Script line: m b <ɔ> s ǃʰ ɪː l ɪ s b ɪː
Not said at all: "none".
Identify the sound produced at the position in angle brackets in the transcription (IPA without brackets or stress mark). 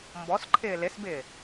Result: ɔ